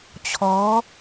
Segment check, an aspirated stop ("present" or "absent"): present